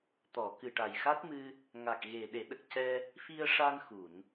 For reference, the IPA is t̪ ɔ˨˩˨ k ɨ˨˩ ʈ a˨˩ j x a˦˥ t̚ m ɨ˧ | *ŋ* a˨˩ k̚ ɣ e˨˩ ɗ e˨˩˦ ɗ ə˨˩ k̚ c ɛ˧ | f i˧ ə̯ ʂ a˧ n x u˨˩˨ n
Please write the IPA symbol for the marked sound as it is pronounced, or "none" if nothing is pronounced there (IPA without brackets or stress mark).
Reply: ŋ